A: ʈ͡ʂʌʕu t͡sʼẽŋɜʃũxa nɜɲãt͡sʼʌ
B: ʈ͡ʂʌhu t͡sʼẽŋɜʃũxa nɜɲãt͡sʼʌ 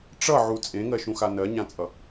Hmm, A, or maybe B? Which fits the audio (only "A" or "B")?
A